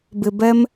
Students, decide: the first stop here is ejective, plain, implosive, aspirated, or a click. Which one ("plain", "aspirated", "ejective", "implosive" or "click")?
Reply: plain